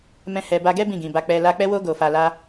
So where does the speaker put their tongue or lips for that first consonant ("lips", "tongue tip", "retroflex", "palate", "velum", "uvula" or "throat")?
lips